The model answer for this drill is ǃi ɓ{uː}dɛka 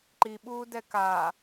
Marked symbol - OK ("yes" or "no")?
yes